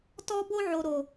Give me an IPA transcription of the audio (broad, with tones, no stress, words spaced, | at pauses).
tɔ˦ bo˦ʕo˨ɾo˨